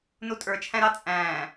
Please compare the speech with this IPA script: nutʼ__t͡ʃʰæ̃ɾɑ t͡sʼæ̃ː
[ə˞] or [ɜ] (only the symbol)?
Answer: ə˞